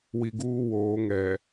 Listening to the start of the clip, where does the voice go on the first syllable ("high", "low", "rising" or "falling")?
low